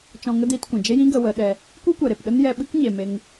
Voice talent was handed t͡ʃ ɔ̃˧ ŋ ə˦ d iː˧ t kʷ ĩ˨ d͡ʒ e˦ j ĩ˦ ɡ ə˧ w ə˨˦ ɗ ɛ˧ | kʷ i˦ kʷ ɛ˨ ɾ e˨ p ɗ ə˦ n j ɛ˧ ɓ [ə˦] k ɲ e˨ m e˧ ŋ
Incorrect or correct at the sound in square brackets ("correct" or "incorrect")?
incorrect